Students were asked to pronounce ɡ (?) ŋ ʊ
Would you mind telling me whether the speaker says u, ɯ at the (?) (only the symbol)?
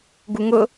u